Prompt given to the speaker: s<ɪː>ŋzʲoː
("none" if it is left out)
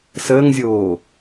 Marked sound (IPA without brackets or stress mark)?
əː